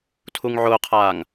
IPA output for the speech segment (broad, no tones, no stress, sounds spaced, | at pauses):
tʰ u ŋ ʕ ʊː qʰ aː ŋ